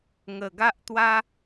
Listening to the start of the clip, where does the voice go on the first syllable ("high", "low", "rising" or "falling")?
low